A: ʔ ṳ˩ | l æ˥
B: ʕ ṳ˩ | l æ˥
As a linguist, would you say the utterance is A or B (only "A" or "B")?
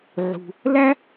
B